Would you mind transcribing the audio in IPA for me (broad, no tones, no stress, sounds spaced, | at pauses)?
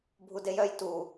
bʱ u d e j œ j t u